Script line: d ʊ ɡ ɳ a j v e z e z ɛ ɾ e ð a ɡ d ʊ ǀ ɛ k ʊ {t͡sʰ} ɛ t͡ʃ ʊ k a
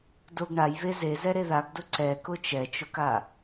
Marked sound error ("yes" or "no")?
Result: yes